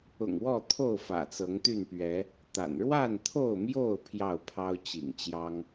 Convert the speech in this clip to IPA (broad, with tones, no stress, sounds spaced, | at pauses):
ʊ̰˨˩ ŋ w ɔ˥˨ t̪ʰ o˥˨ ʊ̯ f ä̰˨˩ t͡s ɤ˨˦ ŋ t̪ y˥˨ n p ɥ ɛ˨˦ | t̪ a̰˨˩ n ɻ w a˥˨ n t̪ʰ o˥˨ ʊ̯ m j o˥˨ ʊ̯ pʰ j ɑ˥˨ ʊ̯ pʰ ɑ˦ ʊ̯ t͡ɕ ḭ˨˩ ŋ t͡ɕ j ɑ˦ ŋ